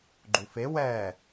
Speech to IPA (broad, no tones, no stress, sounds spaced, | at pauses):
ɡ͡ǃ u f e w ɛ